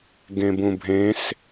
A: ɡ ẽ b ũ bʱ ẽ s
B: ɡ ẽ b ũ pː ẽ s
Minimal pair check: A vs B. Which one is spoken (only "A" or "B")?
A